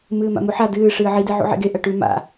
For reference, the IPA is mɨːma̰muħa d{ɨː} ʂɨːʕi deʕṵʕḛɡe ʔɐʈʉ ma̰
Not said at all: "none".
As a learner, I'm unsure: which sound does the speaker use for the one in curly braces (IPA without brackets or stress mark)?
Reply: ɨː